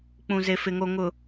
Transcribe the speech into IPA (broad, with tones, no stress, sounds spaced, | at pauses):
k͡p ũ˨ z e˨ f ɪ˨ ŋ o˨ ŋ ʊ˨